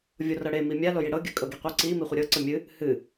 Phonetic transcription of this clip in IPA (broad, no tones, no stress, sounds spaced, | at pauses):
vʲ o r ɤ ɽ e m i mʲ a l o j i ɽ ɤ ɡʲ ə kʼ ɤ ɡ i qʷ ɨ ǀ i m i χʷ ə ɾʲ ɤ ǀ ə mʲ ɨ | h ɨ